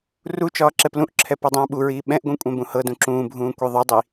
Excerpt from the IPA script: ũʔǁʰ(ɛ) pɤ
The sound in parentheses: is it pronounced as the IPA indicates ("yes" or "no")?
yes